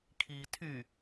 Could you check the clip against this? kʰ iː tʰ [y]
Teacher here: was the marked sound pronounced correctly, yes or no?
yes